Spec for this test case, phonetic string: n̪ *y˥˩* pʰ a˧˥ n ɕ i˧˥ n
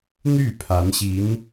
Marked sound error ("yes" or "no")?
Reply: no